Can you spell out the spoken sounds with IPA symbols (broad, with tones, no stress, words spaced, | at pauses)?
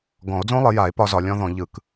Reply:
ɡɔ̃˨˩˦o̯d͡zõ˦˥lˠɪ˨˩˦ja˨˩˦e̯ pɒ˦˥zɒ˨˩˦ lʲɔ̃˦˥ðɔ̃˨˩˦ʎɯ˨˩˦k